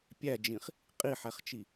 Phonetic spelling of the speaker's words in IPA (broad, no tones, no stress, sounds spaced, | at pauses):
pʲ æ d͡ʒ ĩ χ | qʼ i ħ æ χ t͡ʃ i